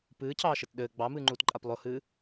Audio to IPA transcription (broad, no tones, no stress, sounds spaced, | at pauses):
p ɨː cʰ ɑː ʃ ɘ t ɗ ɘː ɡ͡b ɑ m ɨː ŋ͡ǃ uː t ǃʼ a p lˠ ʊ h ɨː